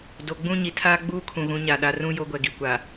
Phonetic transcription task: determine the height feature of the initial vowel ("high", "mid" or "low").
mid